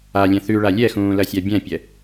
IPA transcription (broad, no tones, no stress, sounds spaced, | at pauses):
a lʲ ɛ̃ θ ʉ ɭ a lʲ ɛ x ũː l ɐ sʲ a bʲ ɛ̃ pʲ ɛ